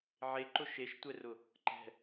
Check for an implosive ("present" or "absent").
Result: absent